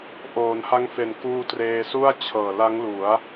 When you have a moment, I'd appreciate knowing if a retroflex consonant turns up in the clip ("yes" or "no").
no